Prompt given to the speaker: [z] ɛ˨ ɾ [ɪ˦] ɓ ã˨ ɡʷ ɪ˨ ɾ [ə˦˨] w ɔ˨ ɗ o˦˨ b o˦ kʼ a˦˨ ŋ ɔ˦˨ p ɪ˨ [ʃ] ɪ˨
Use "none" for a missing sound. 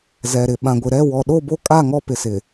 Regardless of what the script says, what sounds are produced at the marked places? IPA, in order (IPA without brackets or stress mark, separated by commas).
z, ɪ˨, ɛ˦˨, s